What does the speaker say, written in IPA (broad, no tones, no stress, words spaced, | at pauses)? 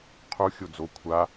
qʰu xʲod͡zo kʷʰa